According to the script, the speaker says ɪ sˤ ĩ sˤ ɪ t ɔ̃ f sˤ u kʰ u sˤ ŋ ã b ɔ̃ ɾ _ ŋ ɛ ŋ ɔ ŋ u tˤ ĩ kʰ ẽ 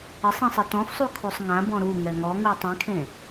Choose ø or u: u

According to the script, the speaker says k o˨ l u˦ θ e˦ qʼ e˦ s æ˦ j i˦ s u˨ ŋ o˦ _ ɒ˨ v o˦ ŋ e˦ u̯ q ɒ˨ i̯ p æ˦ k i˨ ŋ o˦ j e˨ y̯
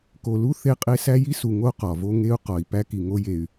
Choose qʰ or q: q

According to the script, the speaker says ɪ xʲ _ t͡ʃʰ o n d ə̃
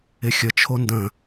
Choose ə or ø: ə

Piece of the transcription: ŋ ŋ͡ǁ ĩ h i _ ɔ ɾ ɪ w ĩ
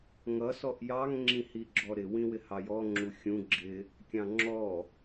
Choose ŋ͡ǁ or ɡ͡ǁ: ɡ͡ǁ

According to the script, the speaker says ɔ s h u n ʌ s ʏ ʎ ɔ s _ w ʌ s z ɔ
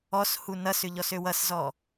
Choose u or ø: ø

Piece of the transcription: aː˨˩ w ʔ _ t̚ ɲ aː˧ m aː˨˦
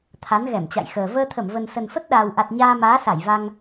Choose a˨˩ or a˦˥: a˨˩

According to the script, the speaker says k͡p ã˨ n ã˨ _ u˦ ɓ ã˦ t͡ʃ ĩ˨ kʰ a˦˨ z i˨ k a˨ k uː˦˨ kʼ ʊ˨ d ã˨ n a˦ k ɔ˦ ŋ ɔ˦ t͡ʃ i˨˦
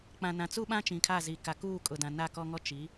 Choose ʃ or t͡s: t͡s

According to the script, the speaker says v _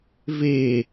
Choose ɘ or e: e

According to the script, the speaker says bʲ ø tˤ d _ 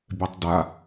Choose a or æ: a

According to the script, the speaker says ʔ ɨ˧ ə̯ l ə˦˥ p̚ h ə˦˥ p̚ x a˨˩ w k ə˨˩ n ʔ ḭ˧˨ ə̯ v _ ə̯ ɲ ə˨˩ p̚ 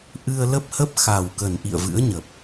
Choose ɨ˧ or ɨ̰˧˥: ɨ̰˧˥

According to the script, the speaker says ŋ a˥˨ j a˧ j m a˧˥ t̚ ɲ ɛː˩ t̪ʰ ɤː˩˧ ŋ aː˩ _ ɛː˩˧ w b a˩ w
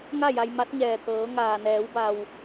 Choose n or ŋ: n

